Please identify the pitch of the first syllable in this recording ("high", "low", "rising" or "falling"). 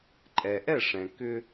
low